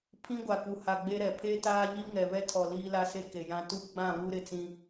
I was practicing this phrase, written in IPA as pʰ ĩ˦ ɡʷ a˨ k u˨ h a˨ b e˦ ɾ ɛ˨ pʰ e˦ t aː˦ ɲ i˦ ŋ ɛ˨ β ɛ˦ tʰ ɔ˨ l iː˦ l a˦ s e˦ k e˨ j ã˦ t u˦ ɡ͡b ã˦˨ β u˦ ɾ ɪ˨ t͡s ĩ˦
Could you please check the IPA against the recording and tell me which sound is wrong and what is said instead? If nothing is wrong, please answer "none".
b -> ɡ͡b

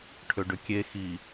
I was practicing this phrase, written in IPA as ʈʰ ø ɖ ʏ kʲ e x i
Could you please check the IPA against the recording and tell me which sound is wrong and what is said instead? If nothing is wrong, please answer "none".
none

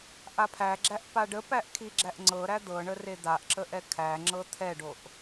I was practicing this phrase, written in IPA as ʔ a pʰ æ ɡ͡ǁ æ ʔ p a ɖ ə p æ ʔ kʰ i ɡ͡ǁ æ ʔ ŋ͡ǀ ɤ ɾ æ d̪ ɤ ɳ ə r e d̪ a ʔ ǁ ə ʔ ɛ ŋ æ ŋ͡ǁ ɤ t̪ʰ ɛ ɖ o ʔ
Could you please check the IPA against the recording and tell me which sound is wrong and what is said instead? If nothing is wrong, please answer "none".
ŋ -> kʰ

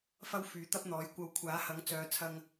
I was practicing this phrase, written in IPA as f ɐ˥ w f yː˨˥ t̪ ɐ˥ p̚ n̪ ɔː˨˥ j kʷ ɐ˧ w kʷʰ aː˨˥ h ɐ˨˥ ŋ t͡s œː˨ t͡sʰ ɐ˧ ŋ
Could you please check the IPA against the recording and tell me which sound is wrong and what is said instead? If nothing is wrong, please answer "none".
none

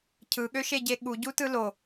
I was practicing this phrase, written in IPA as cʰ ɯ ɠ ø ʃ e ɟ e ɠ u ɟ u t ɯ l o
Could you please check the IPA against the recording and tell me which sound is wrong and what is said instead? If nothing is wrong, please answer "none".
none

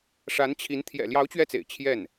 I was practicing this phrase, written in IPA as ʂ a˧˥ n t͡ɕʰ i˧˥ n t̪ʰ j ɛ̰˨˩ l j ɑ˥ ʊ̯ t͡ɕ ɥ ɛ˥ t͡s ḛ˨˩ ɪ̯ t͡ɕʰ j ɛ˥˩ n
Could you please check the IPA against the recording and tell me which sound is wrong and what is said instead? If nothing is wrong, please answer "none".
ɑ˥ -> ɑ˧˥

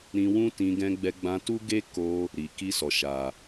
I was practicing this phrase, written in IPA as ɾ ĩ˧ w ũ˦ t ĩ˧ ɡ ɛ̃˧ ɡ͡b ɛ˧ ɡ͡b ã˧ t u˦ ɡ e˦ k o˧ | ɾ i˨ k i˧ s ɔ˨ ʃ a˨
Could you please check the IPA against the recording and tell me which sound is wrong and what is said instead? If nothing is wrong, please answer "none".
none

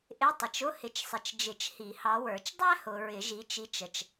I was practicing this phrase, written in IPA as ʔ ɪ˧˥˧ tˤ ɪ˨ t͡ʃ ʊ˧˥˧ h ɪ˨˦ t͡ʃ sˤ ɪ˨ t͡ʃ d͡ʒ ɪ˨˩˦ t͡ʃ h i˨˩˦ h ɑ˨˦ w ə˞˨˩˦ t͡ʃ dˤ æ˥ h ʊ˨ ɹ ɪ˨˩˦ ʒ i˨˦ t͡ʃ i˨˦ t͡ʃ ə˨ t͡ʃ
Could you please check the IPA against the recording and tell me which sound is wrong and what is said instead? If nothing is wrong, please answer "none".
none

